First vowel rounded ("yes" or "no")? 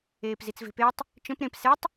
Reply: no